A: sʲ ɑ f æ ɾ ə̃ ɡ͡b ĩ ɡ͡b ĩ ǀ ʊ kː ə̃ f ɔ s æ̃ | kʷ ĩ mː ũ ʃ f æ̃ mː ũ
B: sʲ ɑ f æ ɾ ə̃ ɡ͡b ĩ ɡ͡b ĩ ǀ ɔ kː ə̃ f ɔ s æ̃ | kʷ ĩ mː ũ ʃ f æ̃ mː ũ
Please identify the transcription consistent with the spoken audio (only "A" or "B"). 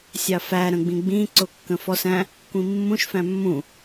A